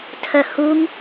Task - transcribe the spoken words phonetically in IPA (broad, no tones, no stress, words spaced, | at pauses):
tʰœhuŋ